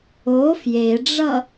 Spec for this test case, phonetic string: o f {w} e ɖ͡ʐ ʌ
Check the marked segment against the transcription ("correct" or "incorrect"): incorrect